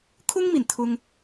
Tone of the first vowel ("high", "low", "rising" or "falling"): high